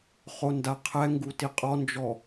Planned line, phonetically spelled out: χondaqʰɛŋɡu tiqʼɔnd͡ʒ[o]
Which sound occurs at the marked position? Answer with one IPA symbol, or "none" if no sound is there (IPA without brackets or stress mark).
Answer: ɔ